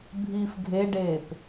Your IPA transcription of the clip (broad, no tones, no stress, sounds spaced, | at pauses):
bʱ iː f ɡʱ e ɖ eː p